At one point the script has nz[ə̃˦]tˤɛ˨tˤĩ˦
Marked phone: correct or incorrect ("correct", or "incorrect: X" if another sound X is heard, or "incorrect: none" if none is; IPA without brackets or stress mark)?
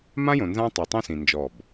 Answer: incorrect: ã˦